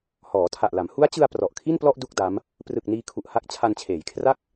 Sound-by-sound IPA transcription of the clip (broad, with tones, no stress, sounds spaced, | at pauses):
h ɔː˩˦ tʰ a˨˩ ʔ l a˩˦ m h u˦˥ a̯ t͡ɕ ɯ˧ a̯ p r ɔ˨˩ ʔ kʰ i˥˩ n p l ɔ˥˩ ʔ d u˥˩ k̚ d a˦˥ m | p r ɯ˨˩ k̚ n iː˧ kʰ u˨˩ ʔ h a˦˥ k̚ t͡ɕʰ a˧ n t͡ɕʰ eː˩˦ j kʰ r a˥˩ k̚